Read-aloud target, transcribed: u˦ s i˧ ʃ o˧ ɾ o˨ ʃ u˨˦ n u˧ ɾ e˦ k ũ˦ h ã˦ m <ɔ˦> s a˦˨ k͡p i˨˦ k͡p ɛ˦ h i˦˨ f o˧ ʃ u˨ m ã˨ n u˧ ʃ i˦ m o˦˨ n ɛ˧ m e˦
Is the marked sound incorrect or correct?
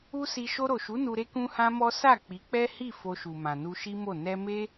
correct